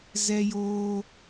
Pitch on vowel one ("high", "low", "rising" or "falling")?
high